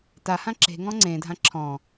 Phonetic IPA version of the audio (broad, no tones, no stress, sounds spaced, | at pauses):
t a h ã ǁ e̤ ŋ ɔ̃ ŋ͡ǀ ẽ dʱ ã ǁʰ ɔ̃